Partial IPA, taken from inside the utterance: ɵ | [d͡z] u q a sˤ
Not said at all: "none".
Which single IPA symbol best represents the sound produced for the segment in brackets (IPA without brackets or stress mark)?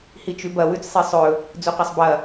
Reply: d͡z